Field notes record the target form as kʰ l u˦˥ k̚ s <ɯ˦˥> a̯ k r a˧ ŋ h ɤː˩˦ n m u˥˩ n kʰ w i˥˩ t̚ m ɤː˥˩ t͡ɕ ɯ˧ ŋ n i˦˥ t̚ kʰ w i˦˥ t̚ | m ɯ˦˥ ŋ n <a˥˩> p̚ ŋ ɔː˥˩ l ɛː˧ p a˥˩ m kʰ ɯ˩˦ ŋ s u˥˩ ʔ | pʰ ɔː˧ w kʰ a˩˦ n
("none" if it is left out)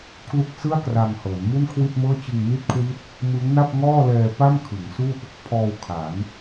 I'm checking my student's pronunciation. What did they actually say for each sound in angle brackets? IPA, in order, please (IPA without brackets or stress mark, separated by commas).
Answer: ɯ˥˩, a˥˩